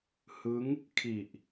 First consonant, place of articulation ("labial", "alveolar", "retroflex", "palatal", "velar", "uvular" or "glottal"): glottal